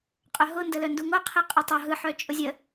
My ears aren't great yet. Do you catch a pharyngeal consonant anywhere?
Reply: yes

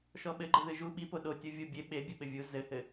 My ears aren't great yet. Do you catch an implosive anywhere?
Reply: yes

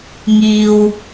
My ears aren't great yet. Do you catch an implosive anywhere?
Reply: no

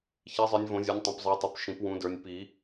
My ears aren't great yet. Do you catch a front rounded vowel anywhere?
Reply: no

